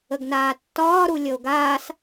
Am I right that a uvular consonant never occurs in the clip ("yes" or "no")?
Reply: yes